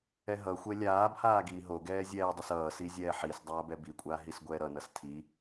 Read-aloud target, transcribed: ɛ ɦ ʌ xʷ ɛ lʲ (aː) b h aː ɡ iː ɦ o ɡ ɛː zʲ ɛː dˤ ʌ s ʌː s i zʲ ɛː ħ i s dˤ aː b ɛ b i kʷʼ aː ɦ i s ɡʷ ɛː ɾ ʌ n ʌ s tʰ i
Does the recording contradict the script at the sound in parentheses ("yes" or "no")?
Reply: no